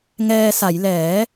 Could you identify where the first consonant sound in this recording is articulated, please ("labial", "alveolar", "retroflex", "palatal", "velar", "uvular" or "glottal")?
velar